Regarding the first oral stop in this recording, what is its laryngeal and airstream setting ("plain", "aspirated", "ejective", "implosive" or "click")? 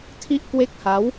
aspirated